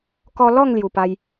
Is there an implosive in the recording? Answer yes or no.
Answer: no